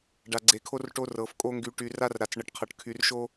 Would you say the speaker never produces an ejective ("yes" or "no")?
no